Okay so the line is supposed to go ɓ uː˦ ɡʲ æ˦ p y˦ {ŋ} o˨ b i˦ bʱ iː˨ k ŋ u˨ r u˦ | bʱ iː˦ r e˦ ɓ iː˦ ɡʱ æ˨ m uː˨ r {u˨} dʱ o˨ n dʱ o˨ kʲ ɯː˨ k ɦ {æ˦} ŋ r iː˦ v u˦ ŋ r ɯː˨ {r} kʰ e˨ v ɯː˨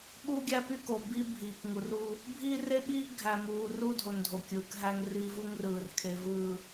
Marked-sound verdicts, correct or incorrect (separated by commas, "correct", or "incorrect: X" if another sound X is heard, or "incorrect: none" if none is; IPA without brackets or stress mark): incorrect: k, incorrect: u˦, correct, correct